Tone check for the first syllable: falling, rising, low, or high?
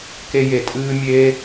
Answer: high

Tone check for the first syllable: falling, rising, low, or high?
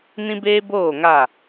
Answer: high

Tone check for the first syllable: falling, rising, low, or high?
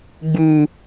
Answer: high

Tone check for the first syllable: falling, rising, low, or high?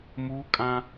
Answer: high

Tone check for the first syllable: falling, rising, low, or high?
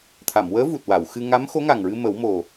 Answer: low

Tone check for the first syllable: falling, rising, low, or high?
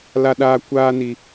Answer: high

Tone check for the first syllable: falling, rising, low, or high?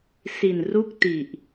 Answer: low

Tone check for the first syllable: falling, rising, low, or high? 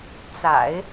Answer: low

